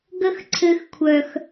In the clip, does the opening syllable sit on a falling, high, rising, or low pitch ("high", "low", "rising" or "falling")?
high